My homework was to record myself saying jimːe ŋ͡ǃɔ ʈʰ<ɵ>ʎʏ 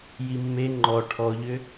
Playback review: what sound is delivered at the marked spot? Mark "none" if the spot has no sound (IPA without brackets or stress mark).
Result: ɔ